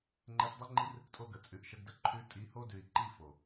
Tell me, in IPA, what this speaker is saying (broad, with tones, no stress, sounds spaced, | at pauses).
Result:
ŋ͡ǃ e˧ f dˤ ɯ˦ ŋ͡ǃ i˦ r | tʼ o˧ ɡ ə˨ t͡sʼ ʉ˨ ʔ ʃ ə˧ ɡ d ə˦ ǃʰ ʉ˧ tʼ i˨˦ h o˧ d ʉ˨ i̯ ǃ i˦˨ f o˨